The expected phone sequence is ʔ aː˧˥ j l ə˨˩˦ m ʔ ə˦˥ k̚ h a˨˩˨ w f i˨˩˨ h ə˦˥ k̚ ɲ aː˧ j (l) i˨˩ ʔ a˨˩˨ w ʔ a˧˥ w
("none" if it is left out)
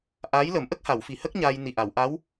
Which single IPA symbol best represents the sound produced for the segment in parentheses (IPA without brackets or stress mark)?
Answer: n